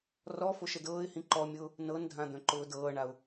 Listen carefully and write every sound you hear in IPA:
rɔ foʃədɤːɪ̯hĩ ǃɔmʲʊː | nɤndʱã d̪œ̃ǃʊːdɤːɳaʊ̯

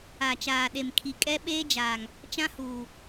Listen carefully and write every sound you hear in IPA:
a˨t͡ʃaː˨ɗe˨m kʰi˨kʼɛ˦ ɓeː˦d͡ʒaː˨ŋ | t͡ʃã˦huː˨

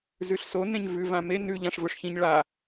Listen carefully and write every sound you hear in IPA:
zʉɬso nẽɲvʉ vãme nʉ ʎãʂvɵʂçĩɲ ɭa

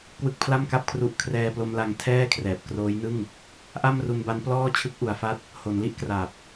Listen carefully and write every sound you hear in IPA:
kwɯ˦˥k̚pʰla˥˩mka˥˩p̚kʰru˦˥ʔ kʰrɛː˧plo˧mla˧ŋ tʰɛː˥˩kʰrɛː˨˩p̚kroː˦˥jnɯ˥˩ŋ | ʔa˥˩mru˧nba˦˥n plɔː˥˩ t͡ɕʰɯ˦˥k̚ʔu˩˦a̯fa˦˥t̚ | ho˩˦nli˥˩ʔkra˨˩p̚

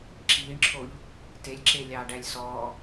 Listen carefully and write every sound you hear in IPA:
ǁiːɳǁʰoʎ | telʲǁe lʲɑːɖælʲsɔː

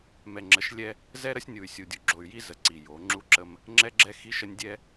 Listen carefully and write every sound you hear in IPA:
mɛ˨ŋ͡ǁə˨˦ʃlʲɛ˦ | zɛ˦ɾə˦sʲnʲu˨y̯ sʲu˨dʲu˨ ɡ͡ǁo˨y̯ji˦zə˨ ǀi˨jo˨˦ ŋ͡ǁu˦ǁə˦m | ŋ͡ǁɛ˦ɡ͡ǁɛ˦ xi˦ʃə˦nʲ dʲɛ˦

